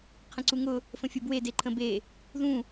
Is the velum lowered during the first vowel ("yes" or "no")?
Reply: yes